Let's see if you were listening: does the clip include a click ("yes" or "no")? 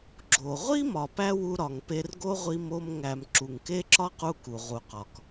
yes